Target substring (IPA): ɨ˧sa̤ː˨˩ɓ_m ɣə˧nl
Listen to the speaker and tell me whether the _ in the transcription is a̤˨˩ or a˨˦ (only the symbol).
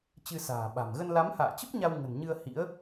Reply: a̤˨˩